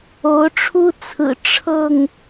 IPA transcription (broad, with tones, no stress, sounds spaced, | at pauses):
o˨˦ ʊ̯ ʈ͡ʂʰ u˦ t͡sʰ ɹ̩˨˩ ʈ͡ʂʰ ɤ˥˨ ŋ